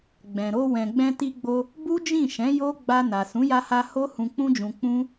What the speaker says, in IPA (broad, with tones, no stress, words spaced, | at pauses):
ɡ͡bɛ̃˨ɾo˧ wɛ̃˨ɡ͡bɛ̃˧ti˧ɡ͡bo˧ | bu˦d͡ʒĩ˦˨ʃɛ̃˨˦ jo˦ ɡ͡ba˧na˨ sũ˨˦ja˧ha˧ ho˦ hũ˧k͡pũ˦d͡ʒũ˧ k͡pũ˦